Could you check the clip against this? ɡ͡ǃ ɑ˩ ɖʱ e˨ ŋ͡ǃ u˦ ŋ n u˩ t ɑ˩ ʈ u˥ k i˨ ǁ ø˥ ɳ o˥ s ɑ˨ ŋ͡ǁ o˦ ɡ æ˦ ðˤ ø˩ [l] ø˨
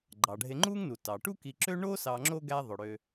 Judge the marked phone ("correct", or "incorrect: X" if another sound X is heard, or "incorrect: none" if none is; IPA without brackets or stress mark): incorrect: ɽ